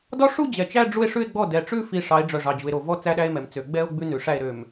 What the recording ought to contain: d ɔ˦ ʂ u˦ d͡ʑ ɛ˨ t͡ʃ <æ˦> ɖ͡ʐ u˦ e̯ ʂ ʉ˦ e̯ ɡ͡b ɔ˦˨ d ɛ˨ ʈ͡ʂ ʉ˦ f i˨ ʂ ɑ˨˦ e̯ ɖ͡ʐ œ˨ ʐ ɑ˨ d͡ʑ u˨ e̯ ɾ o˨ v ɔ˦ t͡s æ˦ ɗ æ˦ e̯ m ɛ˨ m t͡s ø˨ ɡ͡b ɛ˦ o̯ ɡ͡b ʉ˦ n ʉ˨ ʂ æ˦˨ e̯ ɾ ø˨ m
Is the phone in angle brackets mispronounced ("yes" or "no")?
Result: no